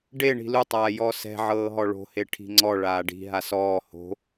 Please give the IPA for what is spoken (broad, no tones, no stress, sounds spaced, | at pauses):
ɖ e ɳ i̤ l u tˤ aː j ɔ s ɛ̤ ʕ ɤː ɦ ɔ ɭ o̤ h e ʈʰ i̤ ŋ͡ǀ ɔ ɭ aː ɖ i̤ ɦ a s ɔː h o̤